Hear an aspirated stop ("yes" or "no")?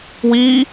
no